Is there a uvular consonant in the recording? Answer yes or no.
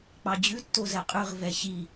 yes